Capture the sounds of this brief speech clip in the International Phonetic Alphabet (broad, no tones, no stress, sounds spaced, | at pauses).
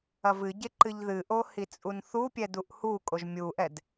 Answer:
ɐ v ɨ ɟ e ǃ ɨ ʎ ð ɨ ʔ o h i t͡sʼ u n θ u pʲ ɛ d u ʔ h u kʼ o ʒ mʲ u ʔ ɛ d